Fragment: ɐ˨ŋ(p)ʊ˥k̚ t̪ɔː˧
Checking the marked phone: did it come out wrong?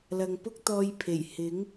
no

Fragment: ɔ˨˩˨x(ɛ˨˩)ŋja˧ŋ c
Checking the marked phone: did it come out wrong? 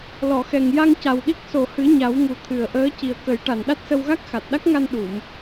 no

